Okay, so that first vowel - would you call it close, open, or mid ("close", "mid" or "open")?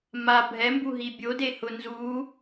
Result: open